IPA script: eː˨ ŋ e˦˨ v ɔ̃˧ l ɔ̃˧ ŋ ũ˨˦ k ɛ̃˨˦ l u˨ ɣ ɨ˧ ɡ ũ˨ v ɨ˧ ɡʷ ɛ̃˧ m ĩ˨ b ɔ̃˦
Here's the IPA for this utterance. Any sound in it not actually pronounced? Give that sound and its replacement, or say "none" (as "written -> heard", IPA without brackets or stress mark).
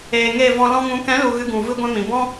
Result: none